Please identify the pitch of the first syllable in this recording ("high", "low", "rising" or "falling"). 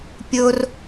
high